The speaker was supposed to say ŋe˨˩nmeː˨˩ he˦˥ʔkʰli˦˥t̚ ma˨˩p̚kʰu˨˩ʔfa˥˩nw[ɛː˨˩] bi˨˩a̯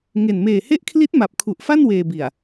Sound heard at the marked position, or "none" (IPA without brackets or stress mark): eː˨˩